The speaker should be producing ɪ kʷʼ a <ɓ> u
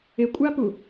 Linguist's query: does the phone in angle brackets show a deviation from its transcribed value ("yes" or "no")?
yes